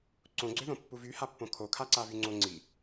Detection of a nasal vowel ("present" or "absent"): present